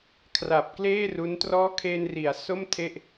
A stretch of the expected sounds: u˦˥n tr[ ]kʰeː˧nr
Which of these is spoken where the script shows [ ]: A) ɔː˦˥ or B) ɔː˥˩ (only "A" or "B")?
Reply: A